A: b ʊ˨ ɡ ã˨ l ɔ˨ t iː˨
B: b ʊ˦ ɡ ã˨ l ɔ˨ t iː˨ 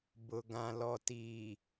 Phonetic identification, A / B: A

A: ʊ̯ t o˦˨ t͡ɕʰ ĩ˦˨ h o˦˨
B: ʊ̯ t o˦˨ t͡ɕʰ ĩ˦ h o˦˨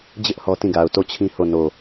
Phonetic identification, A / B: B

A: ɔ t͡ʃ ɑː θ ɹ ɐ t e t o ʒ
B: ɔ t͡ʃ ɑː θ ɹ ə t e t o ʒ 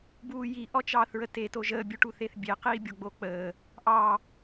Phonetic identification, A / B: B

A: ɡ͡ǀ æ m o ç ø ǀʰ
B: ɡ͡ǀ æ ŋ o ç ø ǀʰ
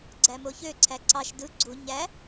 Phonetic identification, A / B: A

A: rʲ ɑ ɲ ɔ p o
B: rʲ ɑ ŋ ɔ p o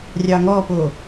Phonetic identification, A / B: B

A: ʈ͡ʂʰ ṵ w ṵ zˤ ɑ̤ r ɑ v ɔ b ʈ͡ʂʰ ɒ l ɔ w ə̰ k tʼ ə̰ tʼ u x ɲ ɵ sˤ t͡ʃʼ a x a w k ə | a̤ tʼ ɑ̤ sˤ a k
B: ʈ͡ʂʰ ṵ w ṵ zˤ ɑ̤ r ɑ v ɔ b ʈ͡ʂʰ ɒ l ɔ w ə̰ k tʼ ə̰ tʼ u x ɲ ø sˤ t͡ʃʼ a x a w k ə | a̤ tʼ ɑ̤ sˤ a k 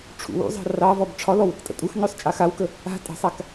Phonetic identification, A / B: B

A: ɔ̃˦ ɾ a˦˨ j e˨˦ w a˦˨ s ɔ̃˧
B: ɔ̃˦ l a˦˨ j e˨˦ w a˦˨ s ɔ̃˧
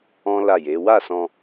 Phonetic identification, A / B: B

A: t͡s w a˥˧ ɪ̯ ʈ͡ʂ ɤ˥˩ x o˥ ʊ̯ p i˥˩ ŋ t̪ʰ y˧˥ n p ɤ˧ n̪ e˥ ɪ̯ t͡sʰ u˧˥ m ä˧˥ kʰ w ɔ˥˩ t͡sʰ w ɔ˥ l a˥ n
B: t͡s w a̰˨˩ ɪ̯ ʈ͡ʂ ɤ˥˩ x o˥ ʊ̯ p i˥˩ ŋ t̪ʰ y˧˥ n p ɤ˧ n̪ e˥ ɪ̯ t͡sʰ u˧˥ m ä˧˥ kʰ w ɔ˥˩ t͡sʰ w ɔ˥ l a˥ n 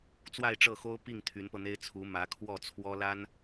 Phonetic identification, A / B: A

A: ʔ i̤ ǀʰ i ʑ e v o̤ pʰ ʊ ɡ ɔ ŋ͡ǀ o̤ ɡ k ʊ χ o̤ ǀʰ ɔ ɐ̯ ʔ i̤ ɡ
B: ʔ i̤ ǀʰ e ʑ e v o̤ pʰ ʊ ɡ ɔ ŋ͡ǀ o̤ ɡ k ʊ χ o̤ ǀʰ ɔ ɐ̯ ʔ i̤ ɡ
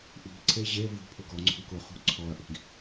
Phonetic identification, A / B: B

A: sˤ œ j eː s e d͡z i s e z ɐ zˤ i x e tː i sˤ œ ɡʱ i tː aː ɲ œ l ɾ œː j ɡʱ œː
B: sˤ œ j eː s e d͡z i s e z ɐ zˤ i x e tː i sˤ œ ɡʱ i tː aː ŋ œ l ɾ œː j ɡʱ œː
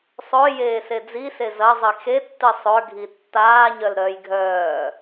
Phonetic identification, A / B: A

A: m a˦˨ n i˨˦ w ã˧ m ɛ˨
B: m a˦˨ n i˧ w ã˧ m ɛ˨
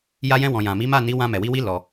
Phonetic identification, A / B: A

